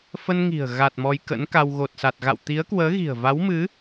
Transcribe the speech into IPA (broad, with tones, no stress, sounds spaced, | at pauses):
f ə˧ n ŋ i̤˨˩ ə̯ ɣ a˨˩ t̚ m ɔ˧ j k ə̰˧˥ n k a˧ w ɣ o˨˩ t̚ s a˨˩ t̚ ɣ a̰˧˨ w t̪ i˨˦ ə̯ k w əː˨˦ ɣ i̤˨˩ ə̯ v a˨˦ w m ɨ˨˦